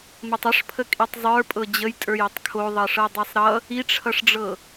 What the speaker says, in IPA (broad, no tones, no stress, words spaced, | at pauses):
mətˤəʂpʰə kʼitˤzˤə˞ pʼɤd͡ʑəjtʼə˞j ətˤkʰoðˤʌʂɤ dˤesˤɾʌ | iʈ͡ʂʰʌʂɖ͡ʐɤ